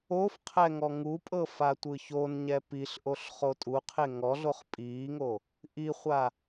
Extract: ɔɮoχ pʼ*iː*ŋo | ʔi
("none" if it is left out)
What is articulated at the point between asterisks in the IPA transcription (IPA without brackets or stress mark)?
iː